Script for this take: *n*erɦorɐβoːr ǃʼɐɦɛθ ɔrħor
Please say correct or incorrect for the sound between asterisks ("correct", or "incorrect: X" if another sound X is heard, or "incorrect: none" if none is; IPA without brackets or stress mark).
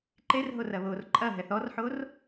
incorrect: ǃ